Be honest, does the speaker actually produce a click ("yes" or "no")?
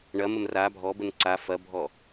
yes